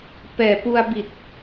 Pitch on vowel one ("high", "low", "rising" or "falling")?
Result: low